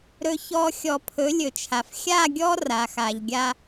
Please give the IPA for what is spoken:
ɾ ɵ˨ ç ɔ˨ xʲ ɔ˨ pʰ ɵ˨˦ lʲ ɵ˨ t͡ʃʰ a˨ f xʲ a˦˨ ɡʲ ɔ˦ r a˨ x a˨ ʎ ɡʲ a˦

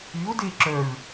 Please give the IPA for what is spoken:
y o̯ d e ǁ œ ɹ

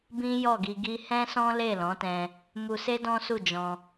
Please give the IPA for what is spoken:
b ĩ˦ j ɔ˦˨ ɡ i˧ ɡ i˦ h ɛ̃˦ s ɔ̃˦ l e˦˨ l ɔ̃˨˦ t ɛ̃˧ | m u˧ s e˦ d ɔ̃˦ s u˦˨ d͡ʒ ɔ̃˧

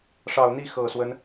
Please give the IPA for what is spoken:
ʂ ɑ˨˩ ʊ̯ n̪ i˥˩ x ɤ˨˩ s w ə˦ n

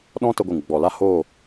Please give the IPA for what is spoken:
ɗ ɔ̃˦ t ə˧ ɡʷ ɨ˨ ŋ ɡ͡b ɔ˨ l a˦ h oː˦˨

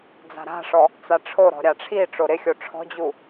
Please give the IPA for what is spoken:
d͡z a̤ ɾ a̤ ʂ ɔ | t͡s a ʈ͡ʂʰ o ɾ ɔ̤ ɾʲ a ʈ͡ʂʰ i ʈ͡ʂ o ɾ ɪ xʲ o ʈ͡ʂʰ ɔ̤ d͡ʑ u

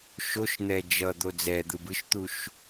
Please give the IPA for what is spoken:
ʃ o ʃ n̪ ɛ d͡ʒ ʌ d̪ o d͡z ɛ d̪ ɯ b ɯ ʃ t̪ u ʃ

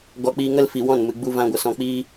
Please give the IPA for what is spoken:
ɡ ɔ˧ k͡p iː˧ ŋ ə˦ l f i˨ w ɔ̃˦˨ n m ɨ˨ ɡ͡b u˦ v ã˦ ɡʷ ə˧ s ɔ̃˧ k͡p iː˦

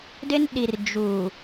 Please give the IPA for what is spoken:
d ɪ˦ n ɗ i˨ r d͡ʒ u˨

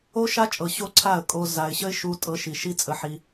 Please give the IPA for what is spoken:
o˦ ʃ a˦ t͡ʃʼ ɤ˨ ɕ o˦ ǀʰ a˦˨ ə̯ kʼ o˧ z a˨ ɪ̯ ɕ ə˦ ɪ̯ ʃ u˦ tʼ ɤ˧ ʃ i˨ ʃ i˦ t͡sʼ ə˧ ħ i˧

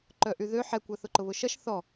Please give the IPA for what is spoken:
ǃ œ ʔ y ð ø ħ ɛ kʷ ɐ θ ʊ ǃ ʊ β ʊ ʃ ɐ ʃ θ ɔ

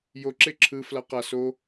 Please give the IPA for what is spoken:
j o ǁ e ǁʰ ɯ f l a q a s o

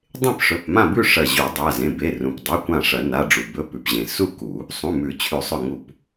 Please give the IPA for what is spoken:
dˤ ẽ˥˨ p ʂ ɵ˩˧˩ p m ã˥˨ b ʉ˥˨ ʂ ɐ˧˩ ʑ u˨˩˦ dˤ a˩˧˩ z ẽ˩˧˩ b e˩˧˩ r ũ˩ p dˤ a˩˧˩ kʷ ã˧˩ ʂ ɐ˨˩˦ n a˩˧˩ ɖ͡ʐ u˩ b ɵ˩˧˩ p ʉ˩ p ʑ ẽ˩ s u˥˨ k u˨˩˦ | sˤ ũ˩˧˩ m ʉ˨˩˦ t͡ɕʰ ʉ˨˩˦ sˤ ɵ˧˩ ŋ u˧˩ p

